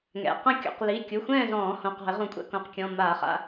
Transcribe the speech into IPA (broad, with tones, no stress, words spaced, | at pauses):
ŋɛ̰˩˧˩ qɐ̃˥˨kʲo̰˧˩˧q li˩˧˩ kʲu˩˧˩xʷɛ̃ː˥˨zɔ̃ː˧˩˧ hõ˩˧˩qɔ̤˧˩˧ɪ̯ʁũ˧˩˧kʷʼɛ̰˥˨ kõ˩˧˩qkʲɔ̃˩˧˩ maː˧˩˧χa̰˥˨